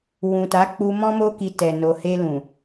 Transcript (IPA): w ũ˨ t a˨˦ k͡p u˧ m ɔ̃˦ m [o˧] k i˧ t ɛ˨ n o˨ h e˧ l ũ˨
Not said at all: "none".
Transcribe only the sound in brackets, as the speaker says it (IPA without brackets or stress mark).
o˦